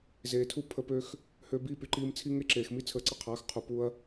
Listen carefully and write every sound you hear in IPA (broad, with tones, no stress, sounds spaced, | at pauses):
z eː˨ tʰ u˦ pʰ ə˧ p ø˧ x | h øː˧ b i˦˨ p y˧ ǃ iː˧ m t͡sʰ i˦ ŋ e˦ ǁ eː˨ x m i˦ t͡sʰ əː˧ ǀ ə˦ qʰ aː˨˦ x qʰ u˨ p u˧ ɐ̯